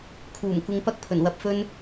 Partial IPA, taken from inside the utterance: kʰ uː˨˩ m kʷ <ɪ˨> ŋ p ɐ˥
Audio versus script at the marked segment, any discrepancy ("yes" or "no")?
yes